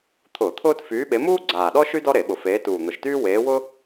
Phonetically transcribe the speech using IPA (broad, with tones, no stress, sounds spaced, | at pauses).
t̪ʰ ʊː˧˩˧ t̪ʰ ʊː˥ t f yː˨˦ ɓ e˨˦ m uː˥ ɡ͡ǀ aː˨˩ ɗ ɔ˥ ʃ y˥ d ɔ˥ ɾ e˧˩˧ ɓ ʊ˨˩ f eː˨˦ t uː˨˩ n̪ ʊ˨˩ ʃ t yː˥ w eː˨˦ w ʊ˥